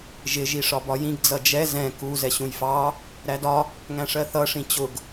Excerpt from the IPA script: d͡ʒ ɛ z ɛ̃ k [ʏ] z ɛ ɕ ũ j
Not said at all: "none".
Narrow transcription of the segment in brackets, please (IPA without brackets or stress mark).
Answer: u